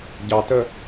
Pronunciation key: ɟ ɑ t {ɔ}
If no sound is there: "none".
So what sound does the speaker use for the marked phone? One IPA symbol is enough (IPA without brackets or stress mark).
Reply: ə